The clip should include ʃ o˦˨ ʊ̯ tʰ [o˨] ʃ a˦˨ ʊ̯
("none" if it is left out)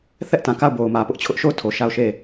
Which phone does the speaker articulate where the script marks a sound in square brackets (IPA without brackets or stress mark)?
o˨